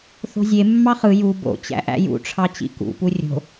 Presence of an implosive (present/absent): absent